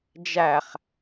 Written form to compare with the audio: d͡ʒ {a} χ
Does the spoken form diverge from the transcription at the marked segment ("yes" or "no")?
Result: yes